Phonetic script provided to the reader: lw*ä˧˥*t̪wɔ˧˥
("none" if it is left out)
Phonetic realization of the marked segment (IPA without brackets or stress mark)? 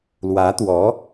ä˧˥